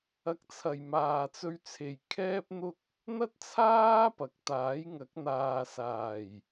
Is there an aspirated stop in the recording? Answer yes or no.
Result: yes